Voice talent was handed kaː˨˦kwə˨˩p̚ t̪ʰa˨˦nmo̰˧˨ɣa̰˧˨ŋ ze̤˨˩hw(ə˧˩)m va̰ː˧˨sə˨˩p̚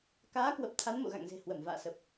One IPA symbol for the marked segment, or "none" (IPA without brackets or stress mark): ə˧˩